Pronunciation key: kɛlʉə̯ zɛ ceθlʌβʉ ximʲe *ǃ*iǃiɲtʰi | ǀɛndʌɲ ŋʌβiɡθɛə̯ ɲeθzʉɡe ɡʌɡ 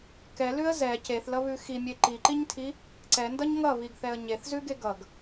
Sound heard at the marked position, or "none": ǃ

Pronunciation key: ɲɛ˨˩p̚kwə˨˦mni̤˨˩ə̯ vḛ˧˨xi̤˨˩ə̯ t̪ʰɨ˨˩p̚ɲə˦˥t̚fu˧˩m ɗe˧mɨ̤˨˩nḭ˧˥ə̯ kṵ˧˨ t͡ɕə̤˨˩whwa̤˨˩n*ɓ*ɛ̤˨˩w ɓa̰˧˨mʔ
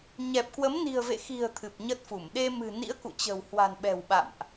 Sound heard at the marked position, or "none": ɓ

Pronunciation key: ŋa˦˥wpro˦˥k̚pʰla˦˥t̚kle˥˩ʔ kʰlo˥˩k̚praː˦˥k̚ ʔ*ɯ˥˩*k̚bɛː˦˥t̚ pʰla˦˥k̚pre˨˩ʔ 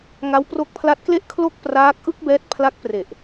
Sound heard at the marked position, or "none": ɯ˥˩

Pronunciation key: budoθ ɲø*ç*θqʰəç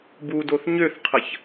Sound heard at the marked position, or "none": none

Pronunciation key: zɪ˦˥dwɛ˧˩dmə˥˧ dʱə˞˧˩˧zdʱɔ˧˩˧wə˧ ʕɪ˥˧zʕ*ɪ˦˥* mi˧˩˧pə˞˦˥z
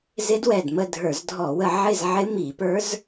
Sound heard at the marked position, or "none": ɪ˦˥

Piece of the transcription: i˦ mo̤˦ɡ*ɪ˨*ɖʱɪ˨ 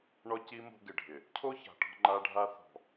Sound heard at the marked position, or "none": ɪ˨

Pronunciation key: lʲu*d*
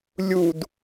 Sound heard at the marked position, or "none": d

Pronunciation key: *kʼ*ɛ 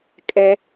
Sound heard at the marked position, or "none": kʼ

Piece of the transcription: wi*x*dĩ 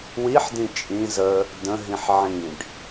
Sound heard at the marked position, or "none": ħ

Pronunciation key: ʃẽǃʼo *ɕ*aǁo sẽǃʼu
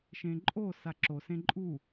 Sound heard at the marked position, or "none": s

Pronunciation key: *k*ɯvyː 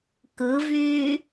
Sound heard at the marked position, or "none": k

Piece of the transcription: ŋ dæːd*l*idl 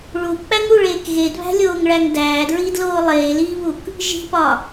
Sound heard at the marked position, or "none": ɹ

